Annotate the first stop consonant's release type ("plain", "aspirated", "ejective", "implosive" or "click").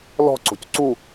click